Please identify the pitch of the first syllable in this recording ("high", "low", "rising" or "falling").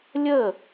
falling